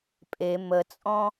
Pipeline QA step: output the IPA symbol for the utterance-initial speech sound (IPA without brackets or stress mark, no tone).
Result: pʼ